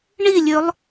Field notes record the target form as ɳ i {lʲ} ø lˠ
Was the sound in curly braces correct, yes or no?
yes